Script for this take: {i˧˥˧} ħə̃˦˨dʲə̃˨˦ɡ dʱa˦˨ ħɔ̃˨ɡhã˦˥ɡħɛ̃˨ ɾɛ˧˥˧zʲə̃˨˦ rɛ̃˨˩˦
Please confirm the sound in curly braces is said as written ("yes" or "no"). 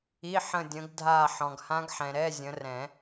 yes